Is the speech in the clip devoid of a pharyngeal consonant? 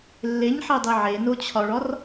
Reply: no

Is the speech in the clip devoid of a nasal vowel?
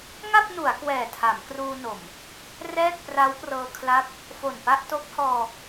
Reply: yes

